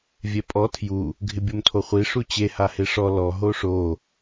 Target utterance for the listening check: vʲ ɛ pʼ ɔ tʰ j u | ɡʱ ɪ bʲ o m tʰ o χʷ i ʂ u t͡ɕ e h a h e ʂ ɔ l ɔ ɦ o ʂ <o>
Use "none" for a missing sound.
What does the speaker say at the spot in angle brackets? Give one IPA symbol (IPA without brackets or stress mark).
o